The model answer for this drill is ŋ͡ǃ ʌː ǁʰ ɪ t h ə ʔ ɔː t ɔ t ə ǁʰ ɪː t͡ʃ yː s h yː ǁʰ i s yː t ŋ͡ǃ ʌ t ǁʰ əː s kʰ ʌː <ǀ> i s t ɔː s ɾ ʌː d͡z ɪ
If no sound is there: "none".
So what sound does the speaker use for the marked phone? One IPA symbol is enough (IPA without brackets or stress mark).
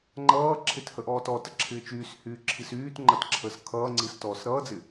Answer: ŋ͡ǀ